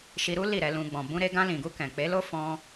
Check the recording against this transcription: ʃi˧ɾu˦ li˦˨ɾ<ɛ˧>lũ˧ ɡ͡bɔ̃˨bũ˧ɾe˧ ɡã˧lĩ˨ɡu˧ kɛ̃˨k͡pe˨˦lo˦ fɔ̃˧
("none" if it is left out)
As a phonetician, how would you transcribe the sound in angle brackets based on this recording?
ɛ˧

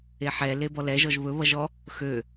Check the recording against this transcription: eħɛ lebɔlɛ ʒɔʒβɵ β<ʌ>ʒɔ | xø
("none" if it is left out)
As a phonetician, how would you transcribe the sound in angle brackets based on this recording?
ʌ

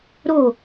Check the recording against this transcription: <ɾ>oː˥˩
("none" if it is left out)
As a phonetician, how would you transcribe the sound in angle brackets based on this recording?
ɾ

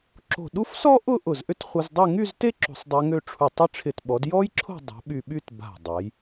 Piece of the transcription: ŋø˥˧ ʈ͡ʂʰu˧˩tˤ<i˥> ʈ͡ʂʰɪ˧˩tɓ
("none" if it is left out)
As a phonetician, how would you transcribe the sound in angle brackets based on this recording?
ɪ˥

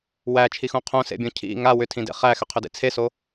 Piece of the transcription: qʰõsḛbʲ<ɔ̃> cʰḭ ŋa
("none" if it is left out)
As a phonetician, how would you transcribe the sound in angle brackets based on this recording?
õ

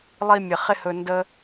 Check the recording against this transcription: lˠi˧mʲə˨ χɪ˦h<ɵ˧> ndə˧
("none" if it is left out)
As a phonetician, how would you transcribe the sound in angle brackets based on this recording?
ɵ˧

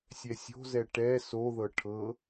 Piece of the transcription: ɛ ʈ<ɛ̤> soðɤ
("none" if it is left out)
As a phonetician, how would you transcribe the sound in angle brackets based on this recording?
ɛ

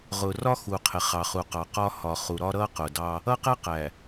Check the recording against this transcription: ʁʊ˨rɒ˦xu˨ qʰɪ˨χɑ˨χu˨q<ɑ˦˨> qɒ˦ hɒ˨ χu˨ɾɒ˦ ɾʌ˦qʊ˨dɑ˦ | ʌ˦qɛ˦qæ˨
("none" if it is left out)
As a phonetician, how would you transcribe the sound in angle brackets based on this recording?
ɑ˨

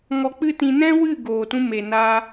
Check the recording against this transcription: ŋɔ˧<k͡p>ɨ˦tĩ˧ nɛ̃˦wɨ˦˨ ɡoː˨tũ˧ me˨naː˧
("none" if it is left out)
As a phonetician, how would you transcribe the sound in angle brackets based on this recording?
k͡p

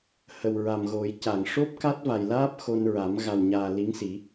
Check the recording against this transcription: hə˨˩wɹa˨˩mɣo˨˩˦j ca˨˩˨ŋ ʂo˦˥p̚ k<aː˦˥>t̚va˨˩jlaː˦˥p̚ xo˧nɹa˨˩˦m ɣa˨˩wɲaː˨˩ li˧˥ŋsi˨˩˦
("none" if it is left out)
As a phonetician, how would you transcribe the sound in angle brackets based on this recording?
a˦˥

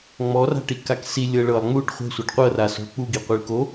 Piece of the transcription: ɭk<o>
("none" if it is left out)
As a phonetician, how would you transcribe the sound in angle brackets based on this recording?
o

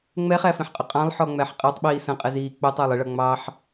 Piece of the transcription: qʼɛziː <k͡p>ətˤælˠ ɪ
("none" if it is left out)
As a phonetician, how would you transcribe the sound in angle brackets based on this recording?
k͡p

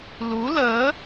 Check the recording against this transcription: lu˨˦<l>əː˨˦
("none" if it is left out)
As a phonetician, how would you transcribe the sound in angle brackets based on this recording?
l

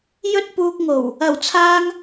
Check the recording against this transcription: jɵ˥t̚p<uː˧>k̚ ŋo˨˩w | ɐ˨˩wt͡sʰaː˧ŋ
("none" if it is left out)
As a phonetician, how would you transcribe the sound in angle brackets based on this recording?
uː˧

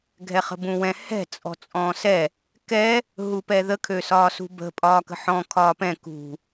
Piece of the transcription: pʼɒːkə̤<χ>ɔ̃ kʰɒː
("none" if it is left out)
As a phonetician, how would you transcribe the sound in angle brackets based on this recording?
ħ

